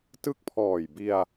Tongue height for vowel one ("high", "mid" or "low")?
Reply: high